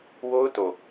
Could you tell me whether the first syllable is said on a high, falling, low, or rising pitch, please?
high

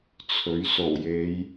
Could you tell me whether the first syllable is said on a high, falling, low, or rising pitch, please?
rising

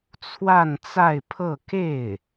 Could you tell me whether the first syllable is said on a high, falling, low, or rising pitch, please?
falling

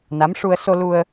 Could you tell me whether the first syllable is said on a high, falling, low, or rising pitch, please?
rising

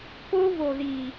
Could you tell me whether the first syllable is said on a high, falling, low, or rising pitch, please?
high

